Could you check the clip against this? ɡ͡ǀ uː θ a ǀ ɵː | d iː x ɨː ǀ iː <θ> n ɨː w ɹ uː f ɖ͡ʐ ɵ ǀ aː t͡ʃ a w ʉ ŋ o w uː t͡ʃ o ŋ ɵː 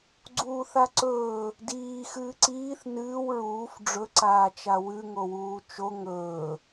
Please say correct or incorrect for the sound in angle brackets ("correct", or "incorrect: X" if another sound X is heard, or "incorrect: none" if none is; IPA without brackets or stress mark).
correct